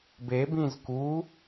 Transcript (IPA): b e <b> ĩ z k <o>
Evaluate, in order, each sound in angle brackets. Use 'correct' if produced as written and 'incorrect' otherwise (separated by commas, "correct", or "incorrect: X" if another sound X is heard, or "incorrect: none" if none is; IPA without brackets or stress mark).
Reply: correct, incorrect: u